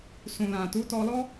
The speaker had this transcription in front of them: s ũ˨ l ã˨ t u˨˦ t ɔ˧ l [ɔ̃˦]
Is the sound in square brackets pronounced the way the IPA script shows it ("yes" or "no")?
no